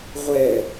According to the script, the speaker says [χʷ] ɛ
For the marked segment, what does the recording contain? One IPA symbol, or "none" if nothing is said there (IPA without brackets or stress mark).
ʁʷ